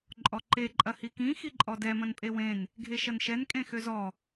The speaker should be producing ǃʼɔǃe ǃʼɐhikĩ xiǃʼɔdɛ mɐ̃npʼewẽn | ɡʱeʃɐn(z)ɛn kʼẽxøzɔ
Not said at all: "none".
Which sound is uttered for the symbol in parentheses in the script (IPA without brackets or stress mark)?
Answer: ʃ